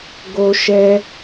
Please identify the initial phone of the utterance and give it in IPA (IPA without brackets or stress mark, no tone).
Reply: ɡ